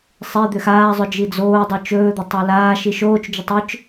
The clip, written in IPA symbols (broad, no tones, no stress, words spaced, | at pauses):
sˤe d̪ʏxaːzˤʏ d͡ʒid͡zoːdˤo t͡ʃɵːd̪ʏ tˤolaːʃiʃ oːt͡ʃd͡ʒʏ tˤʏt͡ʃ